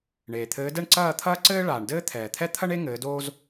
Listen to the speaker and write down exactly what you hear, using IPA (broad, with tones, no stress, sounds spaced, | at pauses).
ɳ eː˩ t̪ʰ ɘː˨˦ d ɛ˥˨ ɳ ǀ ɐː˥˨ t̪ʰ ɐː˥ ǀ ɘː˥ ɭ aː˩ ɳ d ɘː˥ t̪ʰ ɛː˩ t̪ʰ ɛ˥ t̪ʰ ɐ˥ ɳ e˥ ŋ ɘː˨˦ d oː˥ z